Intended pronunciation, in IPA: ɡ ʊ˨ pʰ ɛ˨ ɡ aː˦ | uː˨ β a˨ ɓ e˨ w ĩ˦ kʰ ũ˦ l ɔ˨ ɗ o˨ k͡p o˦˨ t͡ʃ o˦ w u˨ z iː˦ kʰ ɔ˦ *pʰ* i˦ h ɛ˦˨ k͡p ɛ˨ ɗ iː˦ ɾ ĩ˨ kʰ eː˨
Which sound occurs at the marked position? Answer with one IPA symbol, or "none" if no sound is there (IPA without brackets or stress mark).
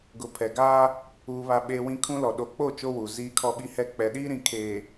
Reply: ɓ